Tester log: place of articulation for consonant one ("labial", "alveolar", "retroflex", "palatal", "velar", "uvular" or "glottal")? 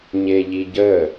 palatal